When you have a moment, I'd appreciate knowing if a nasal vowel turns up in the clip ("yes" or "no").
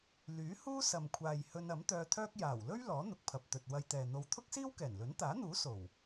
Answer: no